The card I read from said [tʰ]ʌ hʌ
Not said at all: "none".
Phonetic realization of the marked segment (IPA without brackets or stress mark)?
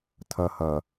tʰ